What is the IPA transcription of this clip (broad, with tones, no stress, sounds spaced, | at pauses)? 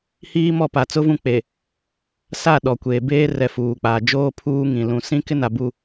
h iː˦ m ɔ˦˨ p a˨ t͡s ʊ˦ v ũ˦˨ k͡p e˨ | s a˦˨ ɗ ɔ˨ kʷ eː˨ b eː˦ r ɛ˨ f uː˨ k͡p aː˨ d͡ʒ oː˦ pʰ uː˦ ŋ ĩ˨ l ũ˨ s ĩ˦ k ɪ˦ n a˨ b u˦˨